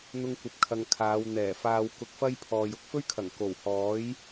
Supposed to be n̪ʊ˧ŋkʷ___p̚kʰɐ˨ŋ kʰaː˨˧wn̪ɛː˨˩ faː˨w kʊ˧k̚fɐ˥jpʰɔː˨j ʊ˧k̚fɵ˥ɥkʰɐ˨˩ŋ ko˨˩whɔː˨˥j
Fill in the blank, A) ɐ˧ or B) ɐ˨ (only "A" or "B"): B